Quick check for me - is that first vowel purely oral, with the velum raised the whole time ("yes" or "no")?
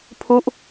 yes